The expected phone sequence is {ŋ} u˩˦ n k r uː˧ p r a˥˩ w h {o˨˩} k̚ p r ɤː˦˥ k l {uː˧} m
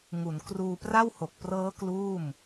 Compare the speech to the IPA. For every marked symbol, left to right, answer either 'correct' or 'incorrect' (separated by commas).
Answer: correct, correct, incorrect